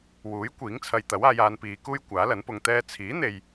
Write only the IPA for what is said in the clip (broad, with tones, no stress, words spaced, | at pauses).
wuː˨˥j kʷiː˨˥ŋt͡sʰɐ˧jt̪ɐ˨˥w aː˨˧jaː˨˧npiː˨˧kuː˥j kʷaː˨˥lɐ˨˥npʊ˧ŋt̪ɛː˥ t͡sʰiː˨˥n̪e˨j